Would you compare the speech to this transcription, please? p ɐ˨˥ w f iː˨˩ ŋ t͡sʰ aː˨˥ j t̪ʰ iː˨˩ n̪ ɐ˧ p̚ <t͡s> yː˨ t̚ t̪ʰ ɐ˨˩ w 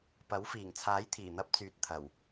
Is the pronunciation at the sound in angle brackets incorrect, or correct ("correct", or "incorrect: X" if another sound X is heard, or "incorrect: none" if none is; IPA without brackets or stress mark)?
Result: correct